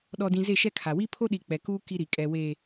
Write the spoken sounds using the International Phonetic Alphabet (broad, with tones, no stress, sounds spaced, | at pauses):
ɗ ɔ˨ d ĩ˨ z e˦˨ ʃ ɛ˦ kʰ a˨ w i˦ pʰ o˦ ɗ i˨ k͡p ɛ˨ k uː˦ k i˦ ɾ i˨ kʼ ɛ˨ w e˨